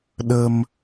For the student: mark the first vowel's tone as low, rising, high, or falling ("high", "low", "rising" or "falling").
low